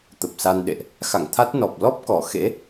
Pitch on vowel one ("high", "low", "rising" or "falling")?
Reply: low